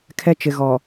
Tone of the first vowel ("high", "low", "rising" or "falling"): high